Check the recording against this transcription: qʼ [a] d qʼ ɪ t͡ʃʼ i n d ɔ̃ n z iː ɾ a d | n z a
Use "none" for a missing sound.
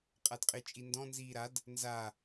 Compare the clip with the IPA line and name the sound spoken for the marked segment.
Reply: a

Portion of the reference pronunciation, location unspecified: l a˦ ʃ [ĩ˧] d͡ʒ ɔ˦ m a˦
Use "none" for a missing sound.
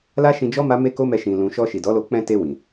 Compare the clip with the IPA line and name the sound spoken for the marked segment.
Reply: ĩ˧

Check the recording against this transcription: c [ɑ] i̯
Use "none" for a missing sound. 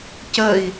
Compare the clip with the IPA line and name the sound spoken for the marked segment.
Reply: ə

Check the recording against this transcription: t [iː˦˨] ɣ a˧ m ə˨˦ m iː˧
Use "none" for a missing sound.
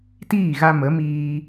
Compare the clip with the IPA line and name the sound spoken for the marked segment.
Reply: iː˦˨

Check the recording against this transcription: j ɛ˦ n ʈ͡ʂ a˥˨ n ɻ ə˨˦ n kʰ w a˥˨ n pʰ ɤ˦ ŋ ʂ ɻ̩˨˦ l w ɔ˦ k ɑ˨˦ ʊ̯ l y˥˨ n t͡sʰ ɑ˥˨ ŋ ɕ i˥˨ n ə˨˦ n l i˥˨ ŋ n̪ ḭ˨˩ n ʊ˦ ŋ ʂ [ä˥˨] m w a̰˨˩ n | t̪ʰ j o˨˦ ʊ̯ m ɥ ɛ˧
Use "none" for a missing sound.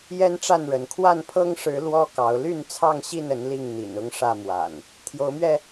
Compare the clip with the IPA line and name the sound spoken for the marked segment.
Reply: ä˥˨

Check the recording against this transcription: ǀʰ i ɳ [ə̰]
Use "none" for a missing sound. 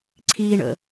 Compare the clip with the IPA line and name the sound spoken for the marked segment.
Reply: ə̰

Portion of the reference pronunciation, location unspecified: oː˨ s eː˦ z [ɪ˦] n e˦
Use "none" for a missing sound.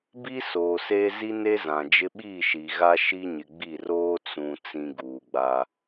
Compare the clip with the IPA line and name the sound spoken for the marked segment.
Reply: i˦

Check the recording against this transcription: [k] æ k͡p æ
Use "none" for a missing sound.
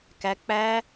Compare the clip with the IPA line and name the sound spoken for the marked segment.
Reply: k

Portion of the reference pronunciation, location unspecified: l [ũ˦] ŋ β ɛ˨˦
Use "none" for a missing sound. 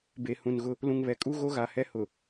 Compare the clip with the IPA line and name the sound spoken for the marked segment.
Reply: ũ˨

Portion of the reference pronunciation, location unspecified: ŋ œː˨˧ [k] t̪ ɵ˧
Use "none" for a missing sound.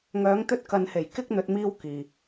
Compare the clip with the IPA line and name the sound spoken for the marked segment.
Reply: ŋ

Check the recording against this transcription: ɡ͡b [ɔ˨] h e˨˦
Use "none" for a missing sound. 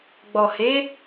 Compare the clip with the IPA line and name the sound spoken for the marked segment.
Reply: ɔ˨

